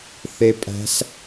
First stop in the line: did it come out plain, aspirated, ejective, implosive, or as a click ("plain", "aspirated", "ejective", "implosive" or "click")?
ejective